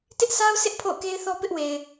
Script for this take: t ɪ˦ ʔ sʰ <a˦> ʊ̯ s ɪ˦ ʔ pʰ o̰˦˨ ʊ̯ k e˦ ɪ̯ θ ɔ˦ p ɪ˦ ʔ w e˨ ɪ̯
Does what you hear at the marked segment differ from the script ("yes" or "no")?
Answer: no